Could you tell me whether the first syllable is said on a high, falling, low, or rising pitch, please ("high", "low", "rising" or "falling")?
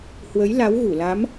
rising